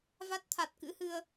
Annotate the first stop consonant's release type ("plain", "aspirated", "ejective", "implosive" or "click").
plain